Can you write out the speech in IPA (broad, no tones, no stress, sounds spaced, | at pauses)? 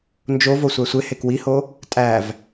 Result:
n d͡ʒ o v o sʷ æ sʷ e h e k w i h o | tʼ æ v